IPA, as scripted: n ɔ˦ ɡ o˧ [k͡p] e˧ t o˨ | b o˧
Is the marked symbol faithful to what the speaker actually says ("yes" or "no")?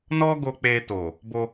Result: yes